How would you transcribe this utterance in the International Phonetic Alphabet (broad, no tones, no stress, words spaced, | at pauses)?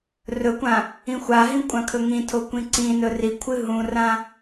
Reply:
rɵkʷã | ĩxʷaɦĩ kʷʼãkʰɵŋĩtʰo kʷĩǀĩnɵ rikʷʰɨ ɦũrã